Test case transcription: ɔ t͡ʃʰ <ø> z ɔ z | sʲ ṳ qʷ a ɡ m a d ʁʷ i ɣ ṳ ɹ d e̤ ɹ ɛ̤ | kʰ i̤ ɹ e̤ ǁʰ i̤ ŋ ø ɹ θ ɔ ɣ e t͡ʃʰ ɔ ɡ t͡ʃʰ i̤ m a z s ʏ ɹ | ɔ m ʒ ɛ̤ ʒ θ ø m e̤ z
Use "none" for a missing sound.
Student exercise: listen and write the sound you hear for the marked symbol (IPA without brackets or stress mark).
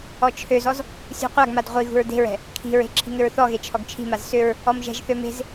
ø